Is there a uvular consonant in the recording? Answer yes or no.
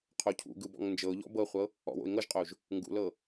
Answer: yes